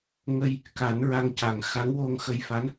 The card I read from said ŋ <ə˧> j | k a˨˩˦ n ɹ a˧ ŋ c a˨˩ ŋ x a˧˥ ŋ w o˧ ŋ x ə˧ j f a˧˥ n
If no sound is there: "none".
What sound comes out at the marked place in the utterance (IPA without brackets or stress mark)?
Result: ə˧